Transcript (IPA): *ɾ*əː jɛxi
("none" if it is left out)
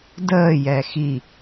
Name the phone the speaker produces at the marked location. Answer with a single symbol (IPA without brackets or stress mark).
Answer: d